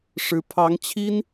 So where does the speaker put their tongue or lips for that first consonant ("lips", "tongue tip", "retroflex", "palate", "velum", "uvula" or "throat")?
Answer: retroflex